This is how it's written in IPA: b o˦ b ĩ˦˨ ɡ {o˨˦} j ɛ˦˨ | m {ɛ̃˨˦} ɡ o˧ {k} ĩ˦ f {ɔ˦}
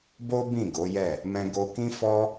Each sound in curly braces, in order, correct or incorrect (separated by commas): correct, incorrect, correct, correct